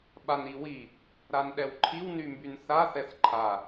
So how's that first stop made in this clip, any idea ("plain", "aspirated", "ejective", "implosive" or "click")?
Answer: implosive